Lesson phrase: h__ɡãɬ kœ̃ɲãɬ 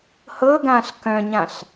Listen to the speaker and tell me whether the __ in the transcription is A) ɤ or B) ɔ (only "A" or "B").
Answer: A